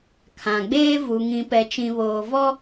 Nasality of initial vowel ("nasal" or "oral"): nasal